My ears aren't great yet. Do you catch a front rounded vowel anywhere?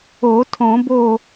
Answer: no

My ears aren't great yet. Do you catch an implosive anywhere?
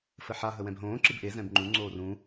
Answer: no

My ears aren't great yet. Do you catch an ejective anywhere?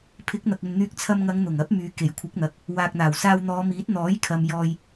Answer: no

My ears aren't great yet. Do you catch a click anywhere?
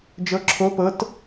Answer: yes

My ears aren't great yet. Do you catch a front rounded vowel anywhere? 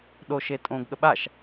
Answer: no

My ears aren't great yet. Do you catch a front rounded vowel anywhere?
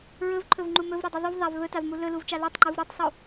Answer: no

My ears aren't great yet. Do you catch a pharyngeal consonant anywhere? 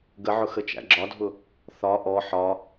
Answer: yes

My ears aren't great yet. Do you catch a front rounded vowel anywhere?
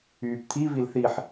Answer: yes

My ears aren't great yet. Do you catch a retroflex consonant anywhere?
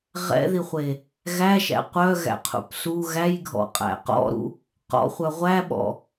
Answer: no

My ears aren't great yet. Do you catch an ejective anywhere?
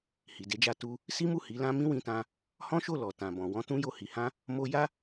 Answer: no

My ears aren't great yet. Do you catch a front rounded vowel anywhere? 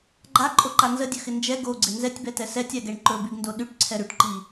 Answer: yes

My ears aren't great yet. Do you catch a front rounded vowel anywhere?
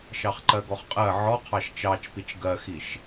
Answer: no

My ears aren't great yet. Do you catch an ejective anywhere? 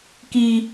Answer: no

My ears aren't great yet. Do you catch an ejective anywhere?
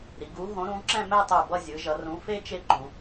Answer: no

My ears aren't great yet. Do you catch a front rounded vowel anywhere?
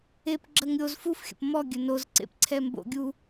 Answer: no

